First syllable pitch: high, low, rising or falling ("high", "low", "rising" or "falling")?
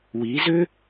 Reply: rising